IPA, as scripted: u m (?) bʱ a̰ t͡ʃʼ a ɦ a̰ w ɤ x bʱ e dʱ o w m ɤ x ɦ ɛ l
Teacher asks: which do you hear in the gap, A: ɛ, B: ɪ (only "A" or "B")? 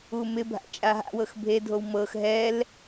B